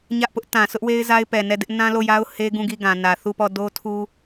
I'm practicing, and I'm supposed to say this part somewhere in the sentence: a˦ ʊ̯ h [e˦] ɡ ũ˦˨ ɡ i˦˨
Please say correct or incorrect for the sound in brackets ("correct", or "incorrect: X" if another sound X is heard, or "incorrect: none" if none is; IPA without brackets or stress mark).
correct